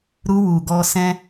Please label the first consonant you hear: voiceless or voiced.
voiced